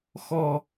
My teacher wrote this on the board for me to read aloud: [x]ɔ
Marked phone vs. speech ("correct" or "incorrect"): correct